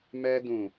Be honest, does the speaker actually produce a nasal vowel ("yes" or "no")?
yes